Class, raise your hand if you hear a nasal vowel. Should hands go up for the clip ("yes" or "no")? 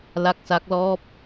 no